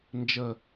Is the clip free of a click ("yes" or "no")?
yes